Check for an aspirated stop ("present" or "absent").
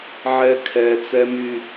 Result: present